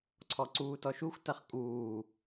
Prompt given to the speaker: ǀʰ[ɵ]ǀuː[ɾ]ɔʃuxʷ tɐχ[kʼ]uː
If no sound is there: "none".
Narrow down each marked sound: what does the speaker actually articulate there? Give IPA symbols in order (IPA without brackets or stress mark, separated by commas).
ɔ, t, kʼ